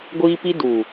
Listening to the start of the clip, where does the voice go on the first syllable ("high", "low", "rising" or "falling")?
high